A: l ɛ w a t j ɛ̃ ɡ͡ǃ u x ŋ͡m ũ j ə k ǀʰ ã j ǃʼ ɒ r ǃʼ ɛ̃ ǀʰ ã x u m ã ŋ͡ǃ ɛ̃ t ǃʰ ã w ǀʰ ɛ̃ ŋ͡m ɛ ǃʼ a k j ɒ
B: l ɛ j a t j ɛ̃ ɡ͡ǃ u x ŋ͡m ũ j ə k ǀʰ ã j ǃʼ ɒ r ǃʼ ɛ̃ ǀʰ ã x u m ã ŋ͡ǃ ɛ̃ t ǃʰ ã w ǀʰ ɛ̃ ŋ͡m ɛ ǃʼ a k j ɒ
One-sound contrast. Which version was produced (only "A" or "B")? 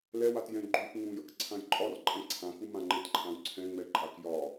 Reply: A